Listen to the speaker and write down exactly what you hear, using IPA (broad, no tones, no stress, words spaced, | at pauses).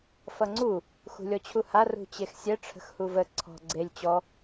fʌŋ͡ǀu | xṳlʲɔt͡ɕʰuha rṳt͡ɕexsʲɛ ʈ͡ʂʰə̤xhuvə ǀʰɔ̤ ɡ͡ǀelʲ t͡ɕɔ